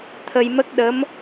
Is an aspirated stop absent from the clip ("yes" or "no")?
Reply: no